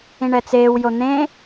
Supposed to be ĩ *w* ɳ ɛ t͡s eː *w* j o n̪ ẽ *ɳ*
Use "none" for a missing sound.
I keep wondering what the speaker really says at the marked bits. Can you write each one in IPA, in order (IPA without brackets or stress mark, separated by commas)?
none, w, none